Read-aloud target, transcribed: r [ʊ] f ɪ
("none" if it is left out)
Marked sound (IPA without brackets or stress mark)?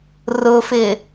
ʊ